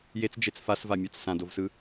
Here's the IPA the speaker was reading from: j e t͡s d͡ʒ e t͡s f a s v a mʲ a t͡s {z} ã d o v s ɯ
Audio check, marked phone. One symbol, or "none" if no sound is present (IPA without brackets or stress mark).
s